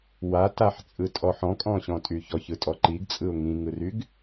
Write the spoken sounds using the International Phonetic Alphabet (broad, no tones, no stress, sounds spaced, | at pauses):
w a t a ħ t͡sʼ ɯ tʼ ɔ ħ ɔ̃ kʼ ɔ̃ ɕ ɔ̃ tʼ y ç ɔ ç ɯ tʼ ɔ ǃ i ɡ t͡sʼ ɯ ʊ̯ ŋ ĩ ŋ ɯ r y ɡ